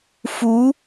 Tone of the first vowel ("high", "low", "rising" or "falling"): rising